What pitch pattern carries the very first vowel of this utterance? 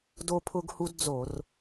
high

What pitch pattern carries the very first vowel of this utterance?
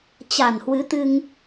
low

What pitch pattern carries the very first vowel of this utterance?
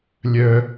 high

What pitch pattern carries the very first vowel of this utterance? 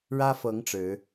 high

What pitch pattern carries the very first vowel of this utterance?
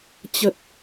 low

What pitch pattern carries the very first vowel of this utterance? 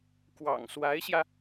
low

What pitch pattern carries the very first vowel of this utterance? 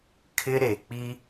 high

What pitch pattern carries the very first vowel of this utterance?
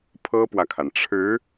high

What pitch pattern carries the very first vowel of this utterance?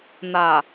low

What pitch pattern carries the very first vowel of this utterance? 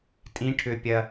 rising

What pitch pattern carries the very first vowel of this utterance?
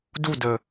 falling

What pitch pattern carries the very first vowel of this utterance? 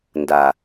low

